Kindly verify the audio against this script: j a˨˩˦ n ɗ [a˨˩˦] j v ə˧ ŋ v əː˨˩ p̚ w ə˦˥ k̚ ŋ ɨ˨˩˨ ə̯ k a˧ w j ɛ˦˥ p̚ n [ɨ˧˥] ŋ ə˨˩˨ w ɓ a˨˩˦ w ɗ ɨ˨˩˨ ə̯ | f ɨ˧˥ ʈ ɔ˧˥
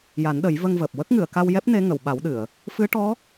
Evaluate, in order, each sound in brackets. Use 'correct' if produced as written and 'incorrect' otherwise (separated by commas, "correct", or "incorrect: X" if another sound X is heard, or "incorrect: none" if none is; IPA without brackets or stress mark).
incorrect: ə˨˩˦, incorrect: e˧˥